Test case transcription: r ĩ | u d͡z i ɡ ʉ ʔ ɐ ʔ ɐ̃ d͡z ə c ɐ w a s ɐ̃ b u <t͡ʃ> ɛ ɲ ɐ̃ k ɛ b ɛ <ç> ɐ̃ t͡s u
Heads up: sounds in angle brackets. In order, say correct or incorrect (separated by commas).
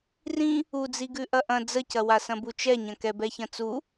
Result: correct, correct